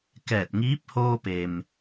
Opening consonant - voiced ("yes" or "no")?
no